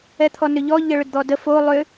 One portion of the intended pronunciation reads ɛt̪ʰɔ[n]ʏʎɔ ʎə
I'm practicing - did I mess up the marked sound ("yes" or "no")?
no